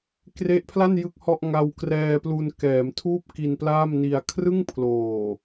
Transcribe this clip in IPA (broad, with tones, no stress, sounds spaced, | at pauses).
k r e˦˥ ʔ pʰ l a˥˩ n j ɯ˥˩ k̚ h ɔ˥˩ ʔ ŋ a˧ w k r ɛː˧ p l u˧ n k ɛː˩˦ m tʰ uː˥˩ p̚ k i˧ n p l aː˥˩ m n i˧ a̯ kʰ r ɯ˥˩ ŋ pʰ l oː˨˩